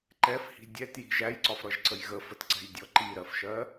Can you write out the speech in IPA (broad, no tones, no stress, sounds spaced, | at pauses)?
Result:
ǃ ɛ f h i̤ dʲ ɛ t j i̤ ʒ æ j ǀ ɒ f ɾ ʌ ʒ ǀ ə j ɣ ə f ə t ǀ ɛ̤ j dʲ ɔ ǃ i ɾ ɜ f ʃ ɜ